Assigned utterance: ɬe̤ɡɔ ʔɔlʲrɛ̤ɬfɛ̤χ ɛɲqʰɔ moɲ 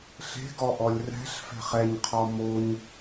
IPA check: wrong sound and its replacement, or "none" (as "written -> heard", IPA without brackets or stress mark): none